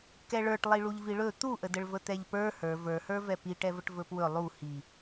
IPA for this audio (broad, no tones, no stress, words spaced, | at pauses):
kɛɭə˞ʈlˠi ɭuʎviɭɵ t̪uʔədəɭvə t̪ɛʎpə˞ hə˞ və˞hə˞vɛ piʈɛvəʈ vɵpwɵ lˠu hi